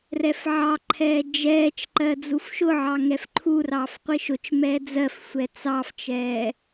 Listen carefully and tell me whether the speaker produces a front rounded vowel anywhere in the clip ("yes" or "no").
no